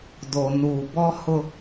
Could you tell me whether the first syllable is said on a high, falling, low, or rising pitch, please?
low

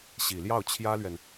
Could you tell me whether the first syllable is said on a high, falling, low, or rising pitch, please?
low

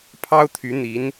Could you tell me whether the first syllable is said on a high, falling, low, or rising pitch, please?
high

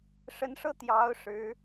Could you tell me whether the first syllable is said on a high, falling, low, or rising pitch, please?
rising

